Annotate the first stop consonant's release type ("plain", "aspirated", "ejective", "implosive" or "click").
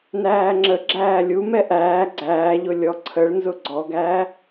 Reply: click